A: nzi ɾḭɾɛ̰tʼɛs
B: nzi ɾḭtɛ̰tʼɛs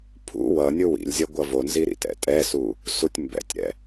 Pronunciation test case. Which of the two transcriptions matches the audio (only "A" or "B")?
B